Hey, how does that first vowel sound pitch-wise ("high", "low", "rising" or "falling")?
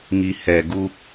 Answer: low